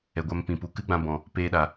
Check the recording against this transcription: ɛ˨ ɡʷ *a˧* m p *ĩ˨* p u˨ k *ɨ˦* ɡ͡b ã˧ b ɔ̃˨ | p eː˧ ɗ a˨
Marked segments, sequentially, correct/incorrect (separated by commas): correct, correct, correct